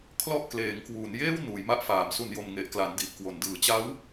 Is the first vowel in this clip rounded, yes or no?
yes